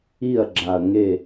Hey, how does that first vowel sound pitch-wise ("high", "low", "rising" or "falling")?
falling